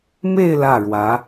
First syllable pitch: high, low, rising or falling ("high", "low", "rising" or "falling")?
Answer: falling